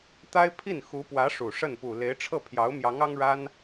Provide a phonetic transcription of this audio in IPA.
t̪ a˥ ɪ̯ pʰ i˥˩ n x u˧˥ p w ä˧˥ ʂ u˨˩ ʂ ə˥˩ n p u˨˩ l e˧˥ ɪ̯ ʈ͡ʂʰ ɤ˥˩ pʰ j ɑ˧˥ ʊ̯ m j ɑ˧˥ ŋ ɑ˥ ŋ ɻ a˥ n

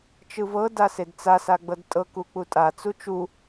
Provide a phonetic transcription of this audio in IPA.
t͡ʃ ɯ v ɤ d a s e d t͡s a s a ɡ͡b ɤ d tʼ ɤ k u k͡p u tʼ a t͡s u t͡ʃ u

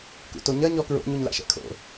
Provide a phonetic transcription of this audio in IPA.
k ṵ t o ɲ ɐ ɲ ɔ k ɹ o̰ ɲ u ɲ l a̰ ʃ ɛ̰ kʰ o̰

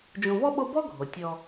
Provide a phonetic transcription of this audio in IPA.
d͡ʒ ũ˨ v ɔ˥ ɓ o˦ b ɔ˥ ɡʱ o˩ tʲ ɔ˨

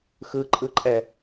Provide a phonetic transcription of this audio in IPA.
x ɯ ǃʼ ɯ ǃʼ ɛ

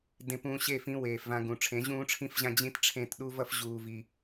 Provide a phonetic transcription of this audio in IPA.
d ẽ˧ p ũː˧ ɕ e˦˨ f ĩ˧ w eː˨ f v ã˧ ɡ ũ˨ ʈ͡ʂʰ ẽ˨˦ ʑ ũː˦ ʈ͡ʂʰ ĩ˦ f ʑ ã˦ d͡ʑ ĩ˦ t ʈ͡ʂʰ ẽ˦˨ t ɗ u˦ v ʌ˦ f ʑ uː˧ v i˧

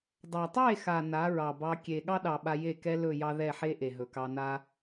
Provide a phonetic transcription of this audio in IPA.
dˤ a˨ tˤ e˦˨ x a˨ n a˨˦ ɹ ɑ˨ b ɑ˧ kʲ e˨ ɠ ɑ˦ ɗ ɑ˨ ɓ a˧ j e˦˨ k ɛ˦ l ɵ˦˨ j ɑ˦ ð ɛ˦˨ ħ e˦ ʔ e˨ ɦ ɵ˨ k ɑ˧ n a˦

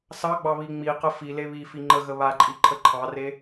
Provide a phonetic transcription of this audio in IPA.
s ɑ ɡ͡b ɑ β i ŋ͡m i q ə f i l e β i f i ŋ͡ǃ ə ɣ ə β a ǃʼ i ǃʰ ə ǃʰ ɑ r e

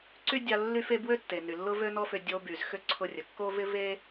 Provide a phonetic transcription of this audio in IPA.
ǀ y˥ dʲ a˧ lː y˥ f e˥ b w ø˥ tː e˩ n y˩ lː ʊ˥ v ø˥ n ɔ˥ f ʏ˧ dʲ o˧ b y˩ z x ʏ˥ ǀʰ ʊ˧ rʲ ə˩ kː o˥ v ɪ˥ v e˥

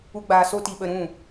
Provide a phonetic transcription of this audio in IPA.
u˦ ɡ͡b aː˧ s o˦ t i˧ ɓ ə˧ ɾ ũ˦˨

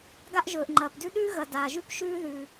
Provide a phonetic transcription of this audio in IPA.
ɡ a˥ ʔ ʒ ɵː˩ ʔ ŋ͡ǃ ɐː˩ p d ʉ˥ ɗ ʉː˥ ɣ ɐ˩ d aː˩ ʒ ʉ˥ p ʃ ʉː˥ ð ʉ˩

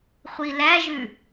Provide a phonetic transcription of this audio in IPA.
χʷ i l æ ʒ ʉ

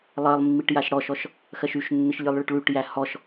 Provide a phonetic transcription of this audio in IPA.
lˠ ɜ lˠ mː i ʈ j a ʃ ɽ ɔ ʃ ɔ ʃ | x ɜ ʃ y ʃ nː ɨ ʃ lʲ ɨ lˠ ɭ ə ʈ ɭ y ʈ j æ h ɔ ʃ

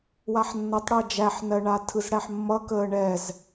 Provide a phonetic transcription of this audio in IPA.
w a ħ nː ʌ tˤ ɽ əː d͡ʒ æ ħ n ɜ ɳ a tʰ ɯ z ɽ æ ħ mː ʌ k əː ɳ ɛ z

